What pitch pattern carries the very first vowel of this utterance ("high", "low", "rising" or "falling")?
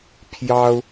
high